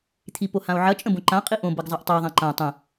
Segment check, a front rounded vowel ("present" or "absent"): absent